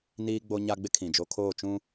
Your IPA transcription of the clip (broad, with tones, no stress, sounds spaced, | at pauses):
n iː˦ ɡ͡b o˦ ɲ a˦ ɡ͡b ɪ˦ kʰ ĩ˨ d͡ʒ o˦ kʰ oː˦˨ t͡ʃ ũ˦